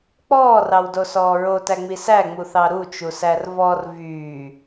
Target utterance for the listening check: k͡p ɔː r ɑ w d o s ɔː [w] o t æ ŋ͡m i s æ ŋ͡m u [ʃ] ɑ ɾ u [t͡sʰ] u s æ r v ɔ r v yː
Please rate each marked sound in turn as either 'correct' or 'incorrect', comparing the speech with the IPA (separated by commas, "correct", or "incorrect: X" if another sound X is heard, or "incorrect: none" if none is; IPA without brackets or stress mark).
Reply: incorrect: ɹ, incorrect: θ, incorrect: t͡ʃ